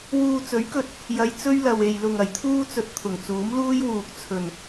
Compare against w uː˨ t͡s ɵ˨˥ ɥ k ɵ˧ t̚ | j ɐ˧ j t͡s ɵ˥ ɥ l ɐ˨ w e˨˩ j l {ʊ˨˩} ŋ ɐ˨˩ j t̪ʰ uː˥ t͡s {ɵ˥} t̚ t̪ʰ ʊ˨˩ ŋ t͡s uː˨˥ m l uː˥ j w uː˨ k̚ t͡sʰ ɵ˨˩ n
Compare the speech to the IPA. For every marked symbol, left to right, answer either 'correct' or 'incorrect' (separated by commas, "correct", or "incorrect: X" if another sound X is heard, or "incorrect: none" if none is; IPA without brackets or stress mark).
correct, incorrect: ɵ˧